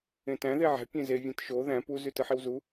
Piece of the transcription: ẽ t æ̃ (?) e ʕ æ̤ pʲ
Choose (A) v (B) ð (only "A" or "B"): B